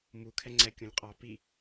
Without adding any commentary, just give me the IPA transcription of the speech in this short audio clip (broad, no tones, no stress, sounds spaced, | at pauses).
m u kʰ ɛ ŋ͡ǀ ɛ kʲ ũ lʲ qʼ ɑ p i